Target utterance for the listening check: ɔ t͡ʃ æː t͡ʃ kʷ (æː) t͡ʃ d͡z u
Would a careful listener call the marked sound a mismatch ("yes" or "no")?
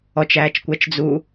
yes